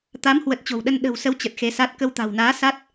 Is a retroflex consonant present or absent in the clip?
absent